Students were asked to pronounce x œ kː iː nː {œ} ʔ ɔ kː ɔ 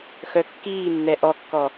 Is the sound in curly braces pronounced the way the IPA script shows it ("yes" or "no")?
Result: no